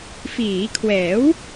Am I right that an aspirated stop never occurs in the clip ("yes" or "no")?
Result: no